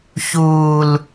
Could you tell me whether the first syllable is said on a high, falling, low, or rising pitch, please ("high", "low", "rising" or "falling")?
low